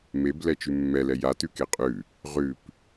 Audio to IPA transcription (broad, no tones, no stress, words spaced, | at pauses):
meblɛ t͡ʃʉmːɛlɛ ja tʉkeqʼʉ | ʁʉp